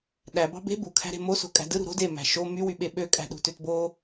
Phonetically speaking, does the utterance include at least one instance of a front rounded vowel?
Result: yes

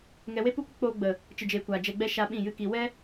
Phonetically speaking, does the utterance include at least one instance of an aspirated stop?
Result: no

